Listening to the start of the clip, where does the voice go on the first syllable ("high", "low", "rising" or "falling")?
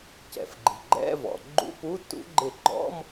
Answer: low